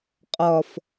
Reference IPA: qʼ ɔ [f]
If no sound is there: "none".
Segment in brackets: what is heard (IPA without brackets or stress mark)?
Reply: f